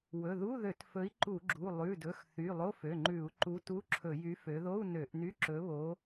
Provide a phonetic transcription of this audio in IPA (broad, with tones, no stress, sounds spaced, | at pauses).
w ɵ˩˧˩ ð u˧˥˧ ð ø˧˩˧ t f ɵ˨˥ i̯ ǃ u˧˩˧ ɡ͡ǁ u˩˧˩ lˠ ʉ˩˧˩ d ɵ˩˧˩ x θ y˩˧˩ lˠ o˧˥˧ f ø˩˧˩ ŋ͡ǃ ʉ˧˩˧ u̯ ǃ u˨˥ t u˧˥˧ ǁʰ ɵ˧˩˧ j y˨˥ f ø˩˧ ð o˧˥˧ u̯ n ø˧˩˧ ʔ n y˧˥˧ ǁ ɵ˨˥ β o˨˥